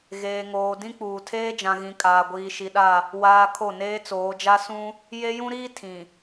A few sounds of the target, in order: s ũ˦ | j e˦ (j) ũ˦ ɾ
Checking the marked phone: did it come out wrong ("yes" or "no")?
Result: no